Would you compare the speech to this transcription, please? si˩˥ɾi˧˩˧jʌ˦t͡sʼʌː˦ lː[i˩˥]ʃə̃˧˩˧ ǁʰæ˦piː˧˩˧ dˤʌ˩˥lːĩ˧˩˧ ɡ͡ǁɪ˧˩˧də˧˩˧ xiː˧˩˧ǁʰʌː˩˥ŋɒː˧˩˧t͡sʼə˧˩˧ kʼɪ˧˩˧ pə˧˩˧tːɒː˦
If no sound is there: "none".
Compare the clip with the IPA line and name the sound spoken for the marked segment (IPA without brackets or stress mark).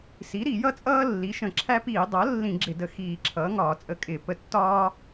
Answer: i˩˥